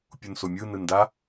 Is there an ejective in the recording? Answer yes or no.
no